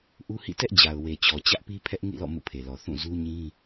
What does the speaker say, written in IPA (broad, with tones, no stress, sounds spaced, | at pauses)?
ʔ u˦ h ḭ˦˨ t ɛ˦ ʔ d͡ʑ a˨ ʊ̯ w e˨ t͡ɕ ɔ˨ t͡ɕ ä˦ ʔ p i˦ pʰ ɛ˦ ʔ ŋ ḭ˦˨ l ɔ̰˦˨ m ṵ˦˨ pʰ e˨ l ɔ˨ θ ũ˦˨ z u˦ ɲ ĩ˦